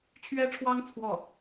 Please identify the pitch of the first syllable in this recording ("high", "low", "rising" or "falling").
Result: high